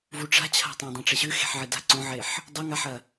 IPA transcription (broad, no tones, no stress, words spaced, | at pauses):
vuʈ͡ʂa̤t͡ɕʰa̤ tˤõdˤãʈ͡ʂeɕʉ xe̤ħʕɨda̤ ǀõʕeħ | dˤoŋaħɐ